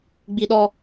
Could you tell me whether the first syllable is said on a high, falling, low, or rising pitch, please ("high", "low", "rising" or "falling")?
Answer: high